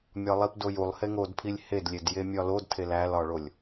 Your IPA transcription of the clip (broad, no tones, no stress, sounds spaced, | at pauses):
mʲ ɒ lˠ i p d o j u lˠ h e ŋ o d pʰ i lʲ h e d lʲ e d j e mʲ ɒ l o d tʰ e l æ l ɒ ɭ o lʲ